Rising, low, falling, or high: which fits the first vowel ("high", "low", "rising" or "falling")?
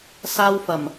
high